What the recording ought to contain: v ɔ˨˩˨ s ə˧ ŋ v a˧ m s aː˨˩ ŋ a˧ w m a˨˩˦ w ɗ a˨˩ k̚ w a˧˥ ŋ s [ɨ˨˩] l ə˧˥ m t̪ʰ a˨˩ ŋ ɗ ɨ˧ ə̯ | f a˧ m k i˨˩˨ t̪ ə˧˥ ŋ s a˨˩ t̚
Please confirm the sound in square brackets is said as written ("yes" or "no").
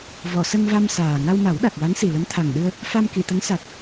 no